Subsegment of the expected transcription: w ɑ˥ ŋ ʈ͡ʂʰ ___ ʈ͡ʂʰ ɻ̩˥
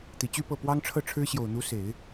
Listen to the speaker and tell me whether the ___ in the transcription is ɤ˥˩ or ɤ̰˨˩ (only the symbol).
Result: ɤ˥˩